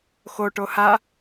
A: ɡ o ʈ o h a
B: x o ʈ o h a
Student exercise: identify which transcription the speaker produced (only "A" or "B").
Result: B